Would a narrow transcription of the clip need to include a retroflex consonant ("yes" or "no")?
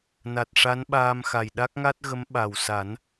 yes